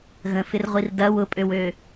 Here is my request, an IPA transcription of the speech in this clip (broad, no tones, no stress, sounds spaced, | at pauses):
ɣ ə̃ f ɪ r ʁʷ i r d ɐ w ʊ pʼ ø w ø